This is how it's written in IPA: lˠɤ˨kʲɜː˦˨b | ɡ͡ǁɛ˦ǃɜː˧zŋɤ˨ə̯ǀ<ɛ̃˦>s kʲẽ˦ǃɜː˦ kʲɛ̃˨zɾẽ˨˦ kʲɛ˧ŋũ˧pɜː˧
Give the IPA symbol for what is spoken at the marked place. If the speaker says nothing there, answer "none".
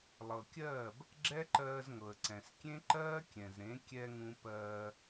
ɛ̃˨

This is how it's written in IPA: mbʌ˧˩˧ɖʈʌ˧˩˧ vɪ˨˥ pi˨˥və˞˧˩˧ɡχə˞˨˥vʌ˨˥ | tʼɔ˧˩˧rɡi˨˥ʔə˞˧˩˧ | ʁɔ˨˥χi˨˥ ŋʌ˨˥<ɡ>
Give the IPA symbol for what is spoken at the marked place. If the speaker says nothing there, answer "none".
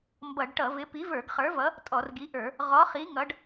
ɖ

